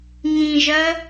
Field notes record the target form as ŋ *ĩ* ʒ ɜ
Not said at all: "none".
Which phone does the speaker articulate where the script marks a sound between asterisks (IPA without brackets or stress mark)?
ĩ